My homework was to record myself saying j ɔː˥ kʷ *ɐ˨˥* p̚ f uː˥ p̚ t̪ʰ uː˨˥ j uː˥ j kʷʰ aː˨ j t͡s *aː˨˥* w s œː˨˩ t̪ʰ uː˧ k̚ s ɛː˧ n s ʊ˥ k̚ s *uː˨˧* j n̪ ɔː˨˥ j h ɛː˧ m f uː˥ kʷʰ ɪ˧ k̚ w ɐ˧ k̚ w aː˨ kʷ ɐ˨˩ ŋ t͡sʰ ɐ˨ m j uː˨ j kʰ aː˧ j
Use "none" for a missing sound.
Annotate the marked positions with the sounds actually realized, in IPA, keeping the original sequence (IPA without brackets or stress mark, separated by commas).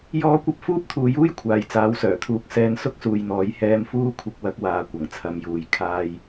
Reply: ɐ˥, aː˨˥, uː˨